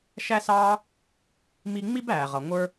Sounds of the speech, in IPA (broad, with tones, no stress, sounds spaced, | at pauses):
ʃ æ˥ s ɑː˥ | m i˦ ŋ͡m i˥ b æː˨ ʁ ʌ˨ ŋʷ ə˞˦